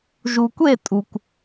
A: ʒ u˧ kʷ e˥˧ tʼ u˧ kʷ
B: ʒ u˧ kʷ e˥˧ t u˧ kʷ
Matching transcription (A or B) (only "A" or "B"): A